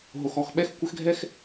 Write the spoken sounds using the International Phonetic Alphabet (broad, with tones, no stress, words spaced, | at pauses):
ɦo˨xɔ˨x ɓɛ˦xkʷɘ˦x ɡʱɛ˦x